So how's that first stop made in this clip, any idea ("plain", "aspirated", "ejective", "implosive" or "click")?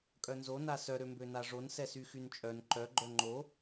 ejective